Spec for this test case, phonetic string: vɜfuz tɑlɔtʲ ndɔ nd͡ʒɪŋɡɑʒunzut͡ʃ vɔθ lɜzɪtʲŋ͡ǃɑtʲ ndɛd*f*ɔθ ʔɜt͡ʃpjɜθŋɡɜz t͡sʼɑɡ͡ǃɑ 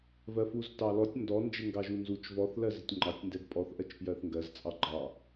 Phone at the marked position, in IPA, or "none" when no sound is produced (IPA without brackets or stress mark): pʼ